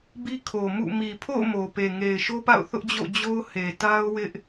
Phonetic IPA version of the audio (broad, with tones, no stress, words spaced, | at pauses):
bi˦kʰo˨ mṵ˦˨ mi˨pʰo̰˦˨ʊ̯ mo˨ pe˨ŋe˨ɪ̯ʃo˦pa̰˦˨ʊ̯ θʊ˦ʔd͡ʑo̰˦˨ d͡ʑo˦ʊ̯he˨ ta˦ʊ̯ wɪ˦ʔ